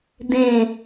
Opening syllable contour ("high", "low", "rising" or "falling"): falling